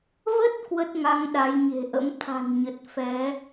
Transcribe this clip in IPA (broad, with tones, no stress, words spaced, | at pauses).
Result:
və˦˥t̚ kwə˦˥t̚ŋa˨˦ŋ ɗa˨˦jɲe̤˨˩ʔə̰˧˥m t̪ʰa̤˨˩nɲə˨˩t̚ fɛ˨˦